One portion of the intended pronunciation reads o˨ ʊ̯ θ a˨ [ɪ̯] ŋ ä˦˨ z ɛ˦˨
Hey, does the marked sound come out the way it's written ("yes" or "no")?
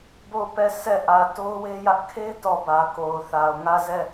no